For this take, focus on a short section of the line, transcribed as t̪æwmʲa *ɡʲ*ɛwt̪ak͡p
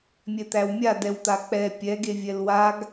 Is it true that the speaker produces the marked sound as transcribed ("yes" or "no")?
no